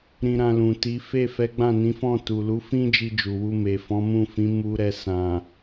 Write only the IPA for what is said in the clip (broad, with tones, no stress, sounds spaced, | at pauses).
ɾ ĩ˧ ɾ ã˧ l ũ˨ t i˨˦ f e˦˨ f ɛ˨˦ ɡ͡b ã˦˨ n ĩ˨˦ f ɔ̃˦˨ t u˨ l u˨˦ f ĩ˦ d͡ʒ i˧ d͡ʒ u˨ w u˧ m e˨ f ɔ̃˨˦ m ũ˦˨ f ĩ˨˦ m u˧ ɾ ɛ˧ s ã˨